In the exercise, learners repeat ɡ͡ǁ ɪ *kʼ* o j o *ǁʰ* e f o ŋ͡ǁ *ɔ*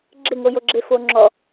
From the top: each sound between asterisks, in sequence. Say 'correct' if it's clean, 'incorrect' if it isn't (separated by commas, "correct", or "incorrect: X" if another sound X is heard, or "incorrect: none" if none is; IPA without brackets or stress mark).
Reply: incorrect: ŋ, incorrect: ɡ͡ǁ, correct